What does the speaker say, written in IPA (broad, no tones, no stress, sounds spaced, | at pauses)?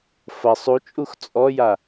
f ɐ sˤ u t͡ʃʼ u x t͡sʼ ɔ j a